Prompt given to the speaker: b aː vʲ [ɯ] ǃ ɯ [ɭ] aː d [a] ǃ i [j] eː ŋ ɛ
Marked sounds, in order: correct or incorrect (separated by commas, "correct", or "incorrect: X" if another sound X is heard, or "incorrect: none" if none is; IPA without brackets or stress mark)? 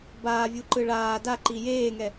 incorrect: u, correct, correct, correct